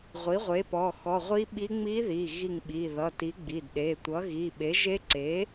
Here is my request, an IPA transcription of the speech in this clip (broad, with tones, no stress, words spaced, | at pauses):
ʁʷi˩˥ʁʷe˩˥pɔ˩˧˩ xɔ˩˧˩ʁʷi˧˥ɓi˧˥ ŋ͡mi˧˥ði˩˧˩ ɣi˧˩ŋɓi˩˧˩ðʌ˩˧˩ti˩˥ ɡ͡bi˩˧˩dɗe˩˧˩tʷʌ˩˥ ɣi˩˧˩ɓe˩˥ ʒe˧˥ǀe˩˥